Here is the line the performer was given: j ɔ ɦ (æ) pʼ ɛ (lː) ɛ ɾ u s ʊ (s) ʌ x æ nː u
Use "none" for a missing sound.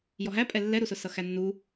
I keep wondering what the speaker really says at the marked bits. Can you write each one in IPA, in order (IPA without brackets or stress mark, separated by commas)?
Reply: æ, lː, s